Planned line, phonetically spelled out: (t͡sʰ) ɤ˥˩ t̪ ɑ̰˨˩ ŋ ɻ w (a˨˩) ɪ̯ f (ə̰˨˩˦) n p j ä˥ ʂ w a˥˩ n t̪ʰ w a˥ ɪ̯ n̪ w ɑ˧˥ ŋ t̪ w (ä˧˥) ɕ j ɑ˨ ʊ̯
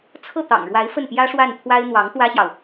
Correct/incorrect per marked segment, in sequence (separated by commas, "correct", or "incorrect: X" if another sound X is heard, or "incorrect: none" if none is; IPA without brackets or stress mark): correct, incorrect: a˧˥, incorrect: ə˥˩, incorrect: ä˥